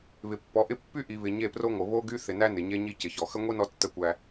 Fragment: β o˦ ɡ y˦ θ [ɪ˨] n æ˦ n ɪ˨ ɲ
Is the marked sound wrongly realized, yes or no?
no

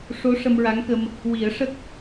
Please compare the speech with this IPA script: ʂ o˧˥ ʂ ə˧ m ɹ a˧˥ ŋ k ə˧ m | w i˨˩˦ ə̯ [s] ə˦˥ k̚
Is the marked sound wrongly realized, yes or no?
yes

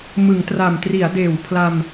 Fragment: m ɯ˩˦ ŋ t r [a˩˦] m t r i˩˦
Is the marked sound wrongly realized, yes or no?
yes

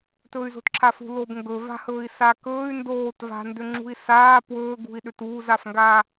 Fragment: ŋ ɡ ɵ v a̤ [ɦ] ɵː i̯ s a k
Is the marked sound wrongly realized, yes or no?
yes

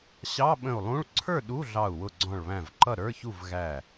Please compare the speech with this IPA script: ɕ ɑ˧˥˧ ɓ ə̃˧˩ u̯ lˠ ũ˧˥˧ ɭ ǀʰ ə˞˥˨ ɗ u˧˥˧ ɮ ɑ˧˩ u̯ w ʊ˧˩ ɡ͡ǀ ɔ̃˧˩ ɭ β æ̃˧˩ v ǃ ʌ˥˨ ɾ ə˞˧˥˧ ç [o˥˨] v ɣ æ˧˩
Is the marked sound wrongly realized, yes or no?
yes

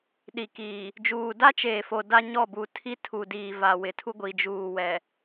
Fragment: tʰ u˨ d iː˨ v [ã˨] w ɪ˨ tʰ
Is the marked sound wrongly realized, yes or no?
yes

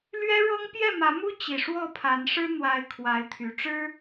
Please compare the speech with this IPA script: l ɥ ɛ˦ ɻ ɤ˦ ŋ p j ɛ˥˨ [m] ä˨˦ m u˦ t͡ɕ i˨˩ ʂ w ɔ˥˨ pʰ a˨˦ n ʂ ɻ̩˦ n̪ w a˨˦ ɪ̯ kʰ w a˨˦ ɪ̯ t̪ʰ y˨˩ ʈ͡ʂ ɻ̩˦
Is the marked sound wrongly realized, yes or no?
no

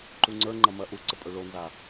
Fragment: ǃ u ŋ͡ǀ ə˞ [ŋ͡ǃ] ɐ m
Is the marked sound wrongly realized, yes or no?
no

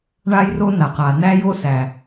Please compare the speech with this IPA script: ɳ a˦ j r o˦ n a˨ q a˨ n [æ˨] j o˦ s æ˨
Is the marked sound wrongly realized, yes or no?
yes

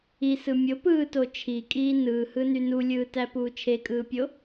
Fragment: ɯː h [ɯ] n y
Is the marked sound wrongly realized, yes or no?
no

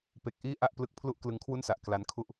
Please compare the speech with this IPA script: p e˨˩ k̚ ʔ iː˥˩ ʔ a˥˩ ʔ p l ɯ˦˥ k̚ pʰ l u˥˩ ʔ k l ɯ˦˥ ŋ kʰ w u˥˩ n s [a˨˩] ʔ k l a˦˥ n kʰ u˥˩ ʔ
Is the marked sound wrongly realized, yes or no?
no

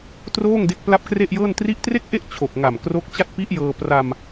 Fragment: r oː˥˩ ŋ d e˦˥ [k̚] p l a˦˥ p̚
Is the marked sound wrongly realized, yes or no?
no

